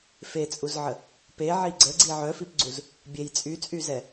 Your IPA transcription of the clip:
fet͡sʼuzʕə | peʕi ɡ͡ǀəɡ͡ǀi ʕœfipɡ͡ǀuz | bʲej t͡sʼyt͡sʼyzɛ

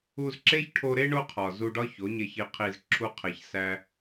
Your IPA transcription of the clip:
u˧zǁe˦çʈʰo˧ɾe˦ ɳo˦qʰɒ˨zu˧ɖɒ˦ ço˨˦ɲe˧çi˧qʰi˧z ǁʰu˧qʰe˨ç sæ˧

